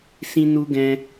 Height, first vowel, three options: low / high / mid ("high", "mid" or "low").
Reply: high